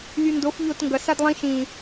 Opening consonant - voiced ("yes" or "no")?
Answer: yes